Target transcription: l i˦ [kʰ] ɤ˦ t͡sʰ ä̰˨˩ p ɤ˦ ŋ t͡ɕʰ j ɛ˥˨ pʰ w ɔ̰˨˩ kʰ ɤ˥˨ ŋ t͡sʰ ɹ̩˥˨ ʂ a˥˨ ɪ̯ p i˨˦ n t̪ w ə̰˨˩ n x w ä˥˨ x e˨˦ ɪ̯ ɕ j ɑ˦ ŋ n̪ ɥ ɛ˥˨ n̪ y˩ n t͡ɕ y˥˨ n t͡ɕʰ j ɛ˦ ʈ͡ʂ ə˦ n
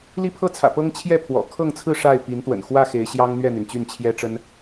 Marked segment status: incorrect: pʰ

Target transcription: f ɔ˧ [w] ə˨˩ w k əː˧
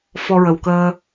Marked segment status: incorrect: ɹ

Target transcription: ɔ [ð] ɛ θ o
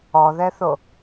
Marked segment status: correct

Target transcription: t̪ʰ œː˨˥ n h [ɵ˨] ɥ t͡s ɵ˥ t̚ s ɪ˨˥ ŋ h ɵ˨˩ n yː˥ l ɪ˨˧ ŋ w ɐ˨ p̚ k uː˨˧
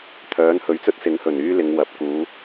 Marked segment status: incorrect: ɵ˨˥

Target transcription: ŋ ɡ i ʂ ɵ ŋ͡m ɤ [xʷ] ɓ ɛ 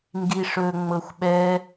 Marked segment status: correct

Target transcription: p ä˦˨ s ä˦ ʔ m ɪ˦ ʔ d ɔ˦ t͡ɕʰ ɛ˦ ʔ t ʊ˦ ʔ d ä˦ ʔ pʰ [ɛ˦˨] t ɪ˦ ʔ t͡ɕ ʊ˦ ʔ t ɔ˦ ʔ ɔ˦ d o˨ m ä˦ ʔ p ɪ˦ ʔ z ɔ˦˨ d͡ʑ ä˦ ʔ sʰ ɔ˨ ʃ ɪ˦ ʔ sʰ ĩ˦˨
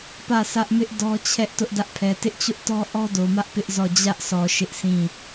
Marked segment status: incorrect: ɛ˨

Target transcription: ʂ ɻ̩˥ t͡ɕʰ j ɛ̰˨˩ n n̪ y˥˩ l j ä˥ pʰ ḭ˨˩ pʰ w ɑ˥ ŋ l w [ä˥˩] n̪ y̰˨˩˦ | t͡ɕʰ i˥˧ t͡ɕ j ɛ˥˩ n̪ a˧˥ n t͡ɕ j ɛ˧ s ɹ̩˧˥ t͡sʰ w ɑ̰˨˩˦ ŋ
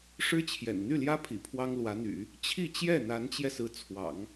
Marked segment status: incorrect: ä˧˥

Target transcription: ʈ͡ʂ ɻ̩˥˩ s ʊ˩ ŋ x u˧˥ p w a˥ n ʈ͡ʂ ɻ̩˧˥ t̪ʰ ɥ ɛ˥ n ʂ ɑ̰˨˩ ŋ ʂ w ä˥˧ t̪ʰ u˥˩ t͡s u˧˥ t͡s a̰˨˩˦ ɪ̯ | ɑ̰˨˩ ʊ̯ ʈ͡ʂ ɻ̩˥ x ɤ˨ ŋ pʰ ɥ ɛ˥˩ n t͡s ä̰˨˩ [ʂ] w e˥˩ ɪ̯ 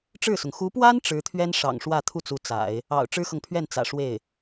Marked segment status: correct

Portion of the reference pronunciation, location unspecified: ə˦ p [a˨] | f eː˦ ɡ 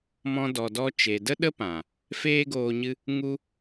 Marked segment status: incorrect: ã˨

